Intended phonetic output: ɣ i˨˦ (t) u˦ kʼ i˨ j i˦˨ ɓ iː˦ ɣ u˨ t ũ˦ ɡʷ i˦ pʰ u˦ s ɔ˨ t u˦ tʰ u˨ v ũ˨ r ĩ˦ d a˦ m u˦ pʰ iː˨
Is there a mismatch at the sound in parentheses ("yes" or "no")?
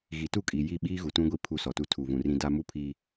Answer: no